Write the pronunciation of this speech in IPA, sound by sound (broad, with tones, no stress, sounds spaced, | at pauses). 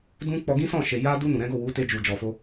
d ũ˧ k͡p ɔ˧ ɡ ĩ˦ s ɔ̃˦˨ ʃ e˨ j a˧ d u˧ n ũ˨ ɾ ɛ̃˨˦ ɡ o˦˨ w u˨˦ t e˧ d͡ʒ u˨ d͡ʒ ɔ˨ f o˧